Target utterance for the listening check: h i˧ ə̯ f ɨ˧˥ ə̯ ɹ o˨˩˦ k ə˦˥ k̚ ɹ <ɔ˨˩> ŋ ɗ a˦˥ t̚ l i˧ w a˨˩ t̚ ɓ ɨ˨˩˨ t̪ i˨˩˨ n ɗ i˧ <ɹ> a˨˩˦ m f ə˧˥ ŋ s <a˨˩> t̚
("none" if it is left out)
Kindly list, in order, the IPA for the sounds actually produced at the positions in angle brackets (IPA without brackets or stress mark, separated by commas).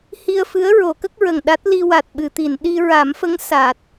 ə˨˩, ɹ, a˨˩